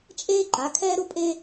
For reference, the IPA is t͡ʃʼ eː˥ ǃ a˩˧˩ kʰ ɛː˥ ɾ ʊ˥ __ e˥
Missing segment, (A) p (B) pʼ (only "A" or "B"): B